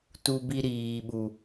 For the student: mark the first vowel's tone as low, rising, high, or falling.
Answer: high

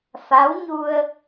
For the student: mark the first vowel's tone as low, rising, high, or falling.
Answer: rising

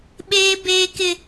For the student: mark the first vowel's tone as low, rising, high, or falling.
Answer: high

